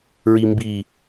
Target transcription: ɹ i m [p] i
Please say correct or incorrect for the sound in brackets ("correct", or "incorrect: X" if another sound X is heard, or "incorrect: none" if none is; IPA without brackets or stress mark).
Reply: incorrect: b